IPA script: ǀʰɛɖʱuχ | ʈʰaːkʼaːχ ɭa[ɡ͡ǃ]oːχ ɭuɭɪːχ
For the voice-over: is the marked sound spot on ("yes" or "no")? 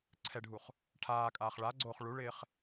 no